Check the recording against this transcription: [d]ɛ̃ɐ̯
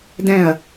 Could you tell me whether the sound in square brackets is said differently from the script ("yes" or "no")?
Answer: no